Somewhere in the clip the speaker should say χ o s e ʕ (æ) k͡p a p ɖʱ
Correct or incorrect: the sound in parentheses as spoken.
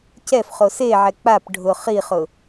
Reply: incorrect: ɛ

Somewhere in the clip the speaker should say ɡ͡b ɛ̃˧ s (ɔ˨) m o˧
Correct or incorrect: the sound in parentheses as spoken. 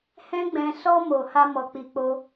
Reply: incorrect: ɔ˦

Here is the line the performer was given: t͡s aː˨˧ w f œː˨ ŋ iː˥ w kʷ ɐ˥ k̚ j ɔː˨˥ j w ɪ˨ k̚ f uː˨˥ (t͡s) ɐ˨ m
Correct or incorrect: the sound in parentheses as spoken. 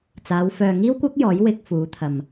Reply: incorrect: t̪ʰ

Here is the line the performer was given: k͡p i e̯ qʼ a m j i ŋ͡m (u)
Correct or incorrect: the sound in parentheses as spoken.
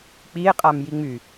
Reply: incorrect: y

